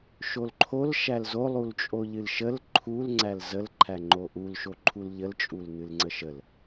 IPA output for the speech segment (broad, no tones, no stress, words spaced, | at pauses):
ʃolǃʰol ʃælzo lˠult͡ʃʼoʎɨlʃəl ǃʰul ŋ͡ǀælzəl ǃʰæŋ͡ǃoʔul ʃoǃʰulʎəl t͡ʃʼulnɨlŋ͡ǀəʃəl